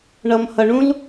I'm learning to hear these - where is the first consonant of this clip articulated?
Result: retroflex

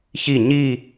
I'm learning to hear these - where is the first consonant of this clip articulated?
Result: palate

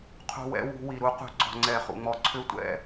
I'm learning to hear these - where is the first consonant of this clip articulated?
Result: uvula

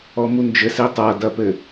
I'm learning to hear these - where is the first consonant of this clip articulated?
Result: lips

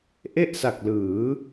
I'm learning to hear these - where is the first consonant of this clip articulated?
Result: throat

